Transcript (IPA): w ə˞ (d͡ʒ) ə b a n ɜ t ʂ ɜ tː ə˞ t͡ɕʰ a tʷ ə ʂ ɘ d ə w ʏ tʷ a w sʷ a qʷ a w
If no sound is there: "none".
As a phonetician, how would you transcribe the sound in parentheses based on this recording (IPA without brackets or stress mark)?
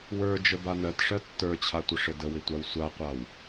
d͡ʒ